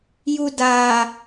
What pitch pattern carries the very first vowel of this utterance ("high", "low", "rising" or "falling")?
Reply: low